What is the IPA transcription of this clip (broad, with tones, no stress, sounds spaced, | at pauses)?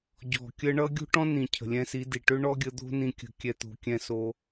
ɟ ɔ̤˨ kʲ ə˧ ɳ ʌ˧ ɡʲ o̤˦ ʈ ɔ̃˦ n ĩ˨ cʰ ə̤˨ lʲ ɛ̃˧ s i˨˦ d i˨ ʈ ø˦ ɳ ɔ˦ ɡʲ ə˧ d̪ o̤˦ n ĩ˧ kʲ ə̤˧ kʲ ɛ˧ t̪ o̤˨˦ kʲ ɛ̃˦ s o˦